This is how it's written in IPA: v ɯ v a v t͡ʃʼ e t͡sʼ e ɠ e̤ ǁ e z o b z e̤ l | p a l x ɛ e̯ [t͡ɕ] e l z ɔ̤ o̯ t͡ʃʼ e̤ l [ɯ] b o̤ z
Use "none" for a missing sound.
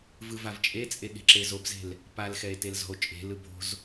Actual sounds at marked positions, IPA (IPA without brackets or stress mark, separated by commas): t, ɯ